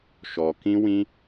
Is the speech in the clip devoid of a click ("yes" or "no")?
yes